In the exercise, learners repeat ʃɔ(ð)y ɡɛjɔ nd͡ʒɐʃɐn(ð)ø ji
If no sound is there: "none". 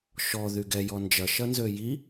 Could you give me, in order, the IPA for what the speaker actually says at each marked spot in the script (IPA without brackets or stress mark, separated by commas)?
ð, z